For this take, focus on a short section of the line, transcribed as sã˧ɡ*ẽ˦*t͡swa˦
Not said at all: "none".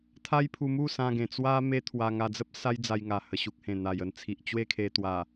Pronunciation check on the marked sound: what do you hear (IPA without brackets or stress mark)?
ẽ˨˩